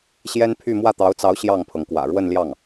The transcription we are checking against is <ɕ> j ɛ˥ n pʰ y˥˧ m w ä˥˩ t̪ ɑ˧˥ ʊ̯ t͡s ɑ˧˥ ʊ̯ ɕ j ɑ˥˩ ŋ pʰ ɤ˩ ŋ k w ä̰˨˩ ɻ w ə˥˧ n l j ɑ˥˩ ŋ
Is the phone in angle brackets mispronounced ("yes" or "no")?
no